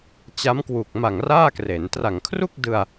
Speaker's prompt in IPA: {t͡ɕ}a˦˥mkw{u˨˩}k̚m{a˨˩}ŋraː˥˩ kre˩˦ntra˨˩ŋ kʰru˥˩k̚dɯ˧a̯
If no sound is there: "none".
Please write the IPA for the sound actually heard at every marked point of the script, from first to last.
t͡ɕ, u˨˩, a˨˩

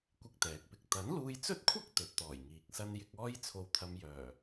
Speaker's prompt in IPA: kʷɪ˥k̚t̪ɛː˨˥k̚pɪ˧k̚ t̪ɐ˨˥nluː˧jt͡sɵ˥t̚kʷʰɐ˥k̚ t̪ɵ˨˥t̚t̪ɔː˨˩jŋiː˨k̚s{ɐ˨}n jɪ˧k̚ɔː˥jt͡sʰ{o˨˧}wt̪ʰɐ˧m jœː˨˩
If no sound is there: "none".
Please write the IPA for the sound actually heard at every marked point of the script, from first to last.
ɐ˥, o˧

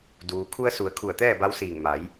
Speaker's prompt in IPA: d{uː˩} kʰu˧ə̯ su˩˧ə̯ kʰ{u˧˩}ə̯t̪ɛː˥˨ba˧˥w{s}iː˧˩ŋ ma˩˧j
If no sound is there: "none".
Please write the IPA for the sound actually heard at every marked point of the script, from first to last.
uː˩, u˧˩, s

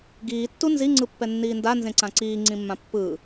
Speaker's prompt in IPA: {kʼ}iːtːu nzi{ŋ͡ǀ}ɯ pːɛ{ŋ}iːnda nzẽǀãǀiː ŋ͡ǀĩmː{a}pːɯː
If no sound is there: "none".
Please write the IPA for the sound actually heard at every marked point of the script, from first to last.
ɡ, ŋ͡ǀ, nː, ã

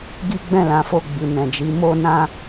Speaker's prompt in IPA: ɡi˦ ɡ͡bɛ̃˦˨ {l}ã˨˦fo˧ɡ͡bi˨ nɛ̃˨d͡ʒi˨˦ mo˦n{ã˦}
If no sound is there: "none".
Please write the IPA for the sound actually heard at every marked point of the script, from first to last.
l, ã˦

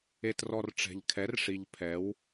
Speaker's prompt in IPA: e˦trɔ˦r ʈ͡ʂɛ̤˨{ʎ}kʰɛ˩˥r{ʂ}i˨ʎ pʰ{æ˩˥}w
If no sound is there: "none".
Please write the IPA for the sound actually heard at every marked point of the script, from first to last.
ʎ, ʂ, ɛ˩˥

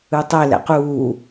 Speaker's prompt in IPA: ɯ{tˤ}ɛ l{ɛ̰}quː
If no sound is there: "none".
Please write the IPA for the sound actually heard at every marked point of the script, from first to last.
tˤ, ɛ̰

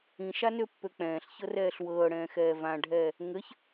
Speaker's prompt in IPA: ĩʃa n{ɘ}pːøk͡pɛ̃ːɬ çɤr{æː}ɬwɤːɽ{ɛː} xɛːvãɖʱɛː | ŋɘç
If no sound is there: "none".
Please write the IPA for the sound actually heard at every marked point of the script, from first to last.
ø, ɛː, ɛ̃ː

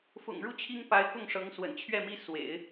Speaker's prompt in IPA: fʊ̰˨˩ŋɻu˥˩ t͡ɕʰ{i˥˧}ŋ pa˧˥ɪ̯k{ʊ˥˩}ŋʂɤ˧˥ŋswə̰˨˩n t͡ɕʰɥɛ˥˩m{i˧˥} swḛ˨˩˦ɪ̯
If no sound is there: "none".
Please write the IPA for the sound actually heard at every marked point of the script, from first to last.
i˥, ʊ˥˩, i˥

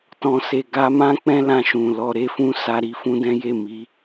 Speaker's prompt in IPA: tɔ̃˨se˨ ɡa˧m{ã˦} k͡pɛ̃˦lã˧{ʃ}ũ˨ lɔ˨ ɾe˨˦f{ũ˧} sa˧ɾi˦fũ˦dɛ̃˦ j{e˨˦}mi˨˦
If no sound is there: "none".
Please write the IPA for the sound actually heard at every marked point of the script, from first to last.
ã˦, ʃ, ũ˧, e˦˨

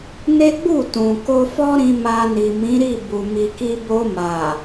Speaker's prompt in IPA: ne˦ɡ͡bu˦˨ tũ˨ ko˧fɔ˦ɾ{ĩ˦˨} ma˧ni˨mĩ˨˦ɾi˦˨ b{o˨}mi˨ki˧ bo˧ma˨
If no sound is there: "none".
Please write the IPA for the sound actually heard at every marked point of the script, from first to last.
ĩ˧, u˨

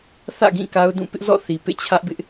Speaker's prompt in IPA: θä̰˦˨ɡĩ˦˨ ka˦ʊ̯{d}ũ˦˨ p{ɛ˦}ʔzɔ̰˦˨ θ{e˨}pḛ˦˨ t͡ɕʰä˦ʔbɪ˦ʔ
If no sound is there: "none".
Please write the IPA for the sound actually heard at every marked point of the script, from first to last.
d, ɪ˦, i˨

